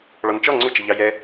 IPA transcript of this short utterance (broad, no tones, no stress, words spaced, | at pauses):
ɭɔnt͡ʃɔ ŋ͡ǀʊ t͡ʃəʎɑjɛ